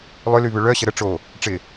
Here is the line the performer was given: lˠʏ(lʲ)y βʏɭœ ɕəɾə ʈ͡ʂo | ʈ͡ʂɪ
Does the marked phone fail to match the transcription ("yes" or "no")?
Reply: yes